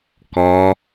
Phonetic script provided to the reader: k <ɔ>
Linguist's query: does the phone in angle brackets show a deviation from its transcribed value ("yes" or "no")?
no